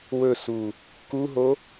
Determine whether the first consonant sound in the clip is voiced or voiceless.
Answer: voiced